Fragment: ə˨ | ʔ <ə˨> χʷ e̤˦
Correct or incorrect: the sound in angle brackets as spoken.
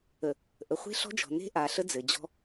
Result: correct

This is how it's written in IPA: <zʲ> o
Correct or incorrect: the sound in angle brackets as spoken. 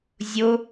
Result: correct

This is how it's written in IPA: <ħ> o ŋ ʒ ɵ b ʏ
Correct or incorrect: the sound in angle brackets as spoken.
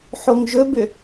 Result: correct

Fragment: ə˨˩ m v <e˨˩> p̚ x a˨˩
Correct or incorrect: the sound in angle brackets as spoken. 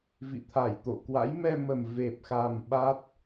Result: correct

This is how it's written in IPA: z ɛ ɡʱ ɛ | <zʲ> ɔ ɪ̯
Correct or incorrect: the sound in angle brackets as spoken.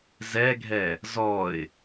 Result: incorrect: z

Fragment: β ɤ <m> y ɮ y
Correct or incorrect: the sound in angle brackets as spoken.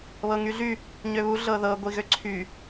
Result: incorrect: ŋ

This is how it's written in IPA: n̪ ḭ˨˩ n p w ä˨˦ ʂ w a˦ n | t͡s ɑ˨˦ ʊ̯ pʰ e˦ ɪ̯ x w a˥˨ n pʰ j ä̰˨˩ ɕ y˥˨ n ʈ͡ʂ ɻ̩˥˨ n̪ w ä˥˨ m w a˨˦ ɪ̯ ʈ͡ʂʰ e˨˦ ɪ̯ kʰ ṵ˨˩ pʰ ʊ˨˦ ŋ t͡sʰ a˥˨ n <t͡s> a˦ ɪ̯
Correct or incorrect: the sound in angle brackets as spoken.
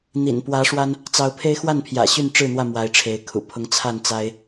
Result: correct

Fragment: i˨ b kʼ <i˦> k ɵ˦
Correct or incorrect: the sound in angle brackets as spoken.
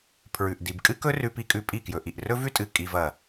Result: incorrect: ɨ˦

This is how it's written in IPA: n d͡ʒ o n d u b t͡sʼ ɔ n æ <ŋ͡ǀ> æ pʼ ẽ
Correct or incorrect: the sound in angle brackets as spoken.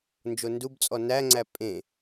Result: correct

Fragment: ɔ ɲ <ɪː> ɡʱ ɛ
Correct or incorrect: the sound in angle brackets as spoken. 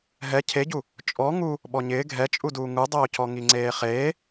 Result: correct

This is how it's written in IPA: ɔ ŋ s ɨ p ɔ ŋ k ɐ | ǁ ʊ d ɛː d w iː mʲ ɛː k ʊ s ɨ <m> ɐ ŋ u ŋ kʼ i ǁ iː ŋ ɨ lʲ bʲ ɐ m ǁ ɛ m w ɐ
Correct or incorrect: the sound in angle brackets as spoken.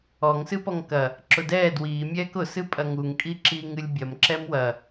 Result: incorrect: pʼ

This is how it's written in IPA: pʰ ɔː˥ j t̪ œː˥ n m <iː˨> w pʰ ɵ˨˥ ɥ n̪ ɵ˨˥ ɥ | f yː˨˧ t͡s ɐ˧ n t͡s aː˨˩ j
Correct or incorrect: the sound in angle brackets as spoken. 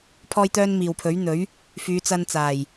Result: correct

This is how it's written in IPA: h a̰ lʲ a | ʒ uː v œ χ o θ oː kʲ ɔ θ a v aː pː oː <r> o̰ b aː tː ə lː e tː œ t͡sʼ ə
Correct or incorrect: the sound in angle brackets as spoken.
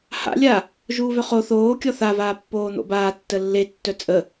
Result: incorrect: n̪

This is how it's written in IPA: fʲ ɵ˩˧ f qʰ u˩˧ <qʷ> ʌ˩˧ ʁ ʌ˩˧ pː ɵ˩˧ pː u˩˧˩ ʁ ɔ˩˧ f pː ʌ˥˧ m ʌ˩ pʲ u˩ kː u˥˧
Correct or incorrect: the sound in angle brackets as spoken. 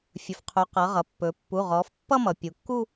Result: incorrect: q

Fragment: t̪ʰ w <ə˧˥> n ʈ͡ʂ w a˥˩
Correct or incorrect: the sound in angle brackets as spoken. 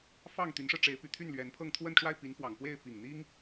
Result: incorrect: ə˥˧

